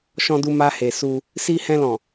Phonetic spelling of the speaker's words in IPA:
ʃ ɔ̃˧ d u˧ m a˧ h e˨ s u˧ | s i˧ h ɛ̃˧ l ɔ̃˨

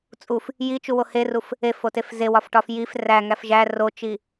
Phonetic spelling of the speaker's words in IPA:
t͡sʼ u f | j i t͡ʃ u w o h e r u f | e f o t e f z e w ɒ f ʈ ɒ f j i f r æ ŋ æ f ʒ æ r o t͡ʃ i

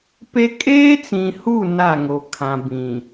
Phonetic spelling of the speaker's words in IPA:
p e˦ kʼ eː˦ t͡s ĩ˨ h u˦˨ n a˦˨ ŋ o˨ kʰ ã˨ b ĩ˨

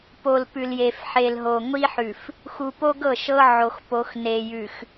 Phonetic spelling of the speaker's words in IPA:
p o˨ l p ʉ˨ l j e˨ f ħ e˨ l ɦ o˨ ŋʷ i˦ ħ ʉ˨ f | x u˨ p o˦ ɡ ɤ˦˨ ʃ ɤ˦ ʕ o˨ x p o˨˦ x n e˨ j ʉ˨ x

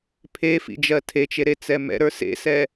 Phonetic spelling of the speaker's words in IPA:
pʰ e f ḭ d͡ʒ ɜ tʰ e t͡ʃ e ɾ e t͡s ɛ m ɛ̰ ɾ ə˞ s ḛ s ɛ

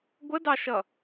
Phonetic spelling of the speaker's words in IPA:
ɡʷ ə d ɑ ʃ ʌ

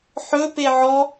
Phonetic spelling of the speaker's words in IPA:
ħ ɵ p e ʕ ɔ

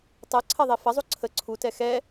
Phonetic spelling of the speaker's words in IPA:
tˤ ɜ ǀʰ ɜ ðˤ e f ɐ zˤ u ǀʰ ə ǀʰ u t ɛ x ɛ

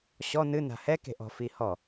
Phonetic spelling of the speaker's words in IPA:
ɕ ɔ n ɨ n a̤ h ɛ k e̤ ʔ ɔ̤ f i h ɔ

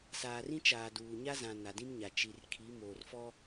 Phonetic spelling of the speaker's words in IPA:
s aː˨ r ĩ˦ t͡ʃ aː˨ d uː˨ ɲ a˦ z ã˨ n a˨ d ĩ˦ m ɲ a˨ t͡ʃ i˨ r kʰ i˨˦ m oː˨ r f ɔ˦

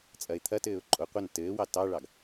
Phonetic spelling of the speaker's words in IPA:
t͡sʼ ɐ ɪ̯ t̪ʰ ɐ t ɘː ʊ̯ ǃʼ o qʷ ɐ n t ɘː w ɑ t ɑ ɭ ɑ ɡ

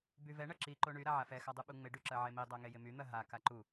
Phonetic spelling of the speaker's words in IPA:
b y v ɛ ɳ ɐ ǁ i ǃ o ɳ y ɾ a ʕ a f ɛ x a dˤ u ɓ u ŋ͡m ɪ ɖ y ǁ ɐ ʕ e m i dˤ a ŋ e j ɪ m y n̪ ɐ ɦ a k a ǃ u

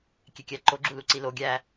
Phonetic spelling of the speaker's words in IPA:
kʲ e kʲ æ ǃ o ɡ͡ǁ u l u ǀ i l o ɡʲ æ

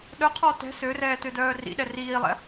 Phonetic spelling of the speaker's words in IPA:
ɗ œ qʰ ɔ t ɛ̤ s ø r ɛː t ø d œː r ḭ ɗ ɛ r iː lˠ ɛ̰

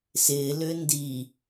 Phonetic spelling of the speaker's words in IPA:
s ɪː l ʏː n d i

